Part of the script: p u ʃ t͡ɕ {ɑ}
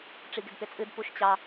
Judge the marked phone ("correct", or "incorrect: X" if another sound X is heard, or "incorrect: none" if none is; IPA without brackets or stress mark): correct